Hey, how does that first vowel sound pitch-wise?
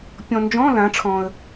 low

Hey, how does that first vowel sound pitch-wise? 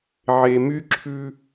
low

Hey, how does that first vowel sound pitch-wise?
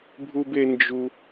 high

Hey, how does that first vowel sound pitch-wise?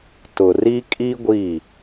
low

